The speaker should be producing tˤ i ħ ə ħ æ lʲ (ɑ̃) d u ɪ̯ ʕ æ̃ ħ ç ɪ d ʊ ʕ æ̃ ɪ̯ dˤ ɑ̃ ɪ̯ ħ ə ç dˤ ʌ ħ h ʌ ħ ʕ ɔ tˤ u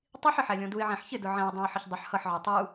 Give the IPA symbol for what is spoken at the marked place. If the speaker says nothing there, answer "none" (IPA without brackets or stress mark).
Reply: ɔ̃